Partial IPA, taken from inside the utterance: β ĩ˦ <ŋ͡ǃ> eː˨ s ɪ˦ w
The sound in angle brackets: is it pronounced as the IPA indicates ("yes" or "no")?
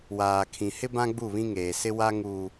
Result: no